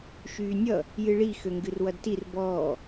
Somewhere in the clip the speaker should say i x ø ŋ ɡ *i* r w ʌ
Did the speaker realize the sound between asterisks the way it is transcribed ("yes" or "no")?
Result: no